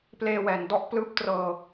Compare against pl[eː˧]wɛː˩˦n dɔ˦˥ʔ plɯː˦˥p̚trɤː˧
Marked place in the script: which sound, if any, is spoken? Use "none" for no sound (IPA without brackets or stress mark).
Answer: eː˧